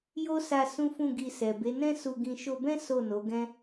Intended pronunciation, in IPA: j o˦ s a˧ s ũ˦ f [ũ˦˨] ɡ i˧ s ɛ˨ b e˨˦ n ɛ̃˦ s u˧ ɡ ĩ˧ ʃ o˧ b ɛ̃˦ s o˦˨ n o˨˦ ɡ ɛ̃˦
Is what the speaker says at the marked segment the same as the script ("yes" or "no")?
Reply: yes